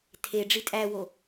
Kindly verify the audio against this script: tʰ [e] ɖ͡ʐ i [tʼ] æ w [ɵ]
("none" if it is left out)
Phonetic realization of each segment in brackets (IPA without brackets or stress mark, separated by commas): e, tʼ, o